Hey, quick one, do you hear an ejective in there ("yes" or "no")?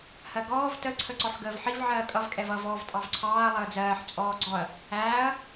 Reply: yes